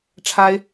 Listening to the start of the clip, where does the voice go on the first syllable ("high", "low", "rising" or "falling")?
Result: high